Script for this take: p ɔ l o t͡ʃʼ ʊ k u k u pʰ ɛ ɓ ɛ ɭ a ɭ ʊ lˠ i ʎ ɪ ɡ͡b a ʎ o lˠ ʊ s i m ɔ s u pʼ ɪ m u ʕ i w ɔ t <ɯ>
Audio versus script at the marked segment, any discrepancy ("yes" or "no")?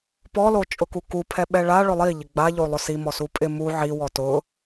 yes